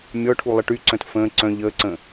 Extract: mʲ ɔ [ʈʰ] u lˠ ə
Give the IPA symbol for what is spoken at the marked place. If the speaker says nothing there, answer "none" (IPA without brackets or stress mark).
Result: ʈʰ